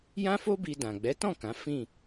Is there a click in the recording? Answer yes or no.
no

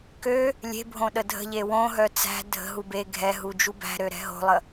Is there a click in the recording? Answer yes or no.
no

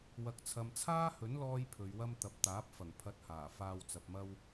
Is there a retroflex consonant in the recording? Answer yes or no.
no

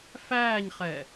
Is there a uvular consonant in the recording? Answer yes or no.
yes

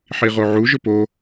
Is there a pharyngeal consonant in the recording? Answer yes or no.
yes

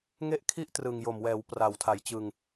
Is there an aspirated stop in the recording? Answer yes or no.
yes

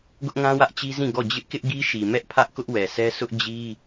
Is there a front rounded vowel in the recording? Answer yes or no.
no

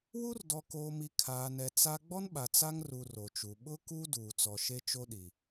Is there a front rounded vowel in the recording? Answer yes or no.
no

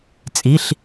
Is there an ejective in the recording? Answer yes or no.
yes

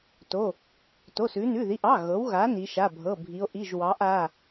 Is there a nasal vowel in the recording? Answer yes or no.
no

